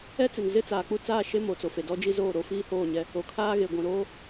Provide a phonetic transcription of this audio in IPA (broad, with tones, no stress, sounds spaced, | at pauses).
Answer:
ɛ˦ t͡s ɪ˨ n z ɪ˦ t͡s aː˨ k͡p u˦ t͡s aː˦˨ ʃ e˦ m o˨ t͡s o˨ f e˨ d ɔ˦ d͡ʒ i˦ z oː˦˨ ɾ o˦ f iː˦ h oː˦˨ ɲ ɛ˦ | o˨ kʰ aː˦ ɣ e˨ ɡʷ ĩ˨ ɾ oː˦